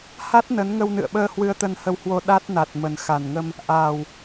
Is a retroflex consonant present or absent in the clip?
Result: absent